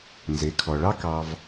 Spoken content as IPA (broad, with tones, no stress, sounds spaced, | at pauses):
n z e˩˧ kʰ ɔ˩ ɭ ɑ˥ k ɑ˧ v